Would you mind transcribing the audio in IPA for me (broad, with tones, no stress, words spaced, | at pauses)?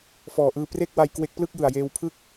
fɔː˨˩ʔɯː˧ pre˥˩k̚wa˧j kwe˦˥k̚ plɯ˥˩k̚jɯ˨˩a̯jeː˧wpʰɯ˥˩k̚